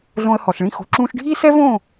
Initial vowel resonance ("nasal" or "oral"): nasal